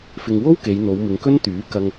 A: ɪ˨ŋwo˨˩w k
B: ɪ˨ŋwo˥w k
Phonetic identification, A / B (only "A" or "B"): B